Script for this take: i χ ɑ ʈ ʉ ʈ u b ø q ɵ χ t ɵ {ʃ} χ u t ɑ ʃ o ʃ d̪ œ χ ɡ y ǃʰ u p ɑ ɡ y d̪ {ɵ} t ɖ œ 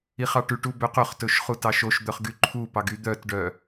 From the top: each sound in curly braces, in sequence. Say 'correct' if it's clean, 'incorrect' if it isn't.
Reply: correct, incorrect

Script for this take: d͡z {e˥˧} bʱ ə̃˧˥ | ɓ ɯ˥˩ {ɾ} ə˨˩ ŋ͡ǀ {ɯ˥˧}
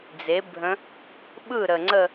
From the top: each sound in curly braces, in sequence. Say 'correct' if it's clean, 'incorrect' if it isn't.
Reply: incorrect, correct, incorrect

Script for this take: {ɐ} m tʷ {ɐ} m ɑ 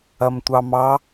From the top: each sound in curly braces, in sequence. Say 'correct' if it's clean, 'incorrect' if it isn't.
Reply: correct, incorrect

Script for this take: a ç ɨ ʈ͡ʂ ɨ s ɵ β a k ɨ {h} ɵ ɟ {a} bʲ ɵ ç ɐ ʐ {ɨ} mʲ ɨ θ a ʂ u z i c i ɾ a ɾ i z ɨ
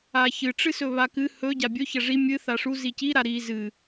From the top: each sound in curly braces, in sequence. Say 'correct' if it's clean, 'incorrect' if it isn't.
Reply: correct, correct, incorrect

